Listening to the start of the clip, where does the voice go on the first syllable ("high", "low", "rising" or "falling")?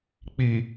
low